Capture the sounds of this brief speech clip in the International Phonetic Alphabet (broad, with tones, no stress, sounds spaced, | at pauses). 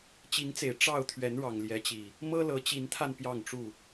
t͡ɕ i˨˦ ŋ t͡s e˨˩ ɪ̯ ʈ͡ʂ ɑ˥˨ ʊ̯ t̪ʰ ɥ ɛ˨˦ n ɻ ɑ˨˩ ŋ l j ɛ˨˦ t͡ɕ i˨˩ | m ɤ˦ l ɤ˨˦ t͡ɕ i˨˦ n t̪ʰ a˧ n p j ɑ˥˨ ŋ ʈ͡ʂ u˥˨